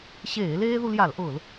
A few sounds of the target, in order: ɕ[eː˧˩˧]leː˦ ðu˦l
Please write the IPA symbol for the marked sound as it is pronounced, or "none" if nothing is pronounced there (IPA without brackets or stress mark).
eː˧˩˧